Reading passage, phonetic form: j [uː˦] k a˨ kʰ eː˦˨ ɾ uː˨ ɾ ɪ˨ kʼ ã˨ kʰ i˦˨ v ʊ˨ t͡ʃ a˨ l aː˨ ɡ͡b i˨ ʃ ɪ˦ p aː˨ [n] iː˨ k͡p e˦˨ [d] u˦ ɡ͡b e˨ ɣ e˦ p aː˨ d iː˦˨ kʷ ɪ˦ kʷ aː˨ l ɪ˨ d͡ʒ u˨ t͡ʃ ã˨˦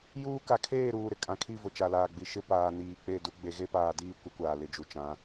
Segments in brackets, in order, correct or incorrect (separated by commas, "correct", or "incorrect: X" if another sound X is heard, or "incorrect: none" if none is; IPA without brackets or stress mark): correct, correct, correct